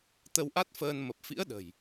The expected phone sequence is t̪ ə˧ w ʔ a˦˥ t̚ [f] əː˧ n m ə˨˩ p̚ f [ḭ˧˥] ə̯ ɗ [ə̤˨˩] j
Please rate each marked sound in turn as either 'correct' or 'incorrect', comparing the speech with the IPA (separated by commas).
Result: correct, correct, correct